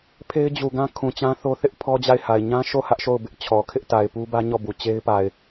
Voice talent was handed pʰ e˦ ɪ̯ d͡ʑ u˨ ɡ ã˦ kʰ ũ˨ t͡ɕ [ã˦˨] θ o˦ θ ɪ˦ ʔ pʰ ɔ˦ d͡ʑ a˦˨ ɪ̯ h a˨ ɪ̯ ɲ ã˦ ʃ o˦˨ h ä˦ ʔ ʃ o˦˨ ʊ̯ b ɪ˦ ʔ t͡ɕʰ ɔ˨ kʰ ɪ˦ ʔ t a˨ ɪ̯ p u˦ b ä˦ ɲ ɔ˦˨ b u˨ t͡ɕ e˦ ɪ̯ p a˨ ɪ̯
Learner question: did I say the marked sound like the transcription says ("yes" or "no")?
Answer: no